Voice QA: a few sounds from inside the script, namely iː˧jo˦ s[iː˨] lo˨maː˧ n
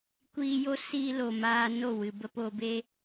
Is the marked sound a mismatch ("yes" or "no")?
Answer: yes